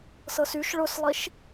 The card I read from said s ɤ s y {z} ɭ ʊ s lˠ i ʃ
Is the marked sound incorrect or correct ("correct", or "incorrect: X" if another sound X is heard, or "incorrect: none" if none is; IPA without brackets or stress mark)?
incorrect: ʃ